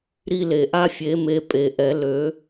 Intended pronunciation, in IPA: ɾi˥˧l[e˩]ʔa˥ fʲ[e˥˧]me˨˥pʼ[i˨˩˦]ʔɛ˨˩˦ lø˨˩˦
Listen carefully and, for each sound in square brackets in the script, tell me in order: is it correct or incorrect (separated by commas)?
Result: correct, incorrect, incorrect